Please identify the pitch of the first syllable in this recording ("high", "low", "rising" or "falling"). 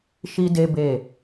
high